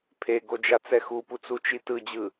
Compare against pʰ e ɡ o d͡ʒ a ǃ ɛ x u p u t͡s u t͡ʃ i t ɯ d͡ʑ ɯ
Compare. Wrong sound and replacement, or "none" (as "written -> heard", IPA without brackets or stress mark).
ǃ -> t͡s